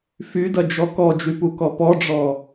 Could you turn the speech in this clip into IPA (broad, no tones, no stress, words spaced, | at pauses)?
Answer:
fydɐd͡ʒɔ kɔd͡ʒypukɔ pɔɖ͡ʐɔ